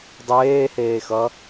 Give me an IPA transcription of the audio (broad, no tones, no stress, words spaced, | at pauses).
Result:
dˤeːheːxʌ